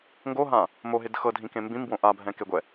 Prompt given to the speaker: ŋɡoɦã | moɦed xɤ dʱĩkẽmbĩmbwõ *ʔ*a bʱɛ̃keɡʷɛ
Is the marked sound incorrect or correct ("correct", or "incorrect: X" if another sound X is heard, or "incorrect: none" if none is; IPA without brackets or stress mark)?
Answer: correct